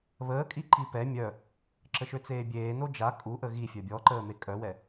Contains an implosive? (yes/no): no